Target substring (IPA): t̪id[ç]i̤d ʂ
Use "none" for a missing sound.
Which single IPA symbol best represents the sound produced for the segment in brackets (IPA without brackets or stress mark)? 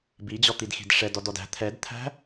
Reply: x